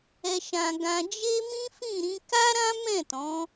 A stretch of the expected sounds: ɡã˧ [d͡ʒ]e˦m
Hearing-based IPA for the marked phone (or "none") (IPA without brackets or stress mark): d͡ʒ